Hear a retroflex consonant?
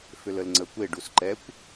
yes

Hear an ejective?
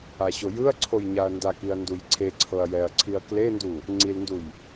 no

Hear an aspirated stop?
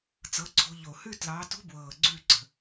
yes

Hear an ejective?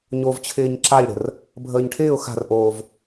no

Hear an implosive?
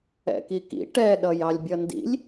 yes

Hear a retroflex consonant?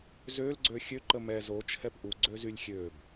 no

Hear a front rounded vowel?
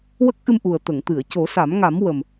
no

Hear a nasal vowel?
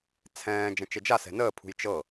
yes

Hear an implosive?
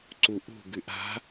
no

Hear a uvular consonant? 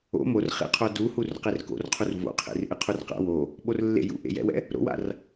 yes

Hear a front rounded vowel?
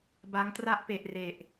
no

